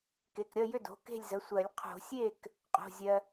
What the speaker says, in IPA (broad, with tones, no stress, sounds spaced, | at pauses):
k e˩˧˩ k ɾʲ ʌ˥˨ j ʏ˥˨ d o̤˩˧˩ k e̤˥˨ lʲ z ə˩˧˩ sʷ ɜ˨˩˦ lʲ qʰ o̤˨˩˦ sʲ e˥˨ k | qʼ o̤˩˧˩ zʲ ɜ˧